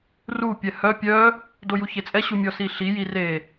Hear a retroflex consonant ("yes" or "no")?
no